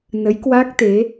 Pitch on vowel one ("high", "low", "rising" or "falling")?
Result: rising